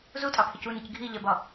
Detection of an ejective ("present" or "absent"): present